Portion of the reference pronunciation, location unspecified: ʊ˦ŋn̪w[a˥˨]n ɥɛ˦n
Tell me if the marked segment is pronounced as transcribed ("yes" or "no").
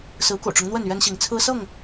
no